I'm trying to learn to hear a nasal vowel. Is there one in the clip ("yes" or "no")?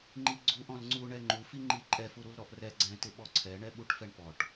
yes